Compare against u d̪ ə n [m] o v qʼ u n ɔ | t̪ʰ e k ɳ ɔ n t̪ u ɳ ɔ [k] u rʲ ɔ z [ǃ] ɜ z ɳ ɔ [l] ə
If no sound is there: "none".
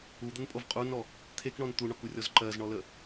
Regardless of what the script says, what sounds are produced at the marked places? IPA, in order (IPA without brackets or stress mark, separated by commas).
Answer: pʼ, k, ǃ, l